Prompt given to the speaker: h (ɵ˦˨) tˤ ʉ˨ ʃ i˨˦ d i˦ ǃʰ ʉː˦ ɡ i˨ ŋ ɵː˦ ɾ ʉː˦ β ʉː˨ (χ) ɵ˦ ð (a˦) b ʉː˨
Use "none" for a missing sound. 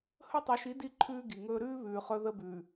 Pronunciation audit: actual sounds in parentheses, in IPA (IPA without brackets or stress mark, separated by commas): ɵ˦˨, χ, ə˦